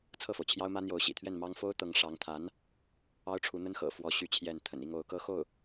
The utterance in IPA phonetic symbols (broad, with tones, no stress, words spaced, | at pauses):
t͡sʰɤ˥˩fo˩ʊ̯t͡ɕʰjɑ˥ʊ̯mä˥ n̪jo˧˥ʊ̯ɕḭ˨˩t̪ʰɥɛ˥˩nmɑ˥ŋ fo˥ʊ̯t̪ɤ˧˥ŋ ʂɑ˧˥ŋ t̪ʰa˧˥n | ɑ˥ʊ̯ʈ͡ʂʰu˧˥n̪ə˥n xɤ̰˨˩ fwɔ˥ɕy˥t͡ɕʰjɛ˥˩n t̪ʰə̰˨˩ni˥˩ŋ o˧˥ʊ̯kɤ˥xo˥˩ʊ̯